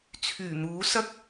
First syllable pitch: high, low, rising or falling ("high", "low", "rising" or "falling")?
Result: low